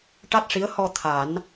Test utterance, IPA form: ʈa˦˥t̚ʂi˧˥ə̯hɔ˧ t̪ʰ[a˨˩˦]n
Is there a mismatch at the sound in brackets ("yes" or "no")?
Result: no